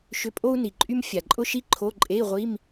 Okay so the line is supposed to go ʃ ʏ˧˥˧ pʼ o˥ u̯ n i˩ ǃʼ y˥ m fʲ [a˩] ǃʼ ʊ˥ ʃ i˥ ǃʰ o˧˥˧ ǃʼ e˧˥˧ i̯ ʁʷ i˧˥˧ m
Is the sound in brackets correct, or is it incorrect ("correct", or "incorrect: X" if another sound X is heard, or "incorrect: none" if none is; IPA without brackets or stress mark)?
correct